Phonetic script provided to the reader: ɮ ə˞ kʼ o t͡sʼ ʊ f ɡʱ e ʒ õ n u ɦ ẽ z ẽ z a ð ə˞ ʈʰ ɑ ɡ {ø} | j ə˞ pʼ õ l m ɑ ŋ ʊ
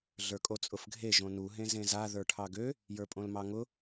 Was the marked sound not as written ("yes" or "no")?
no